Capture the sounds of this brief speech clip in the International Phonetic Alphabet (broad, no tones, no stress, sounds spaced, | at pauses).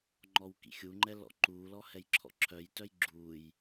ŋ͡ǃ ɔ w k ḭ xʲ u ŋ͡ǃ ɛ l ɔ̰ ǃ uː l ɔ h ɛ j ǁʰ ɔ̰ ǁʰ œ j t œ j ɡ͡ǁ u j